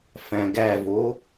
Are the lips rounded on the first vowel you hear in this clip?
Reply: no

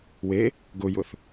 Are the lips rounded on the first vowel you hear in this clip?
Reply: no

